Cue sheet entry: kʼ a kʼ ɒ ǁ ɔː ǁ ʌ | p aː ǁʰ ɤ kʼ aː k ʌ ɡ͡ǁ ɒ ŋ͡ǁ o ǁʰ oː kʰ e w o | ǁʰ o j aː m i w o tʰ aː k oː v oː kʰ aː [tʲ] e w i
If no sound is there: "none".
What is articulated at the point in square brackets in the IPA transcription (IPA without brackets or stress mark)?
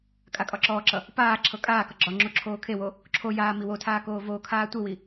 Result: tʷ